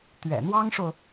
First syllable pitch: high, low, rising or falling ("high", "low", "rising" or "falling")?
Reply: low